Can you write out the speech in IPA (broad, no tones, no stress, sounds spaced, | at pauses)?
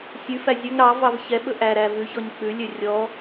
sʲ ʉ f æ zʲ ɵ ŋ ɾ ɑ v ɑ v ç ɛ ɓ ɵ ʔ æ ɾ æ v ʉ ç ɔ ɲ k͡p ʉ lʲ ø rʲ ɔ